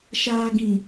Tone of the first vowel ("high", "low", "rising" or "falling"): low